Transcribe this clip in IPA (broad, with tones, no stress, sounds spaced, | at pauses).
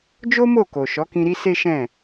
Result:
d͡ʒ o˦ m o˦˨ k o˨ ʃ ɔ˨˦ k ĩ˧ ɾ i˦ s e˦ ʃ ɛ̃˦˨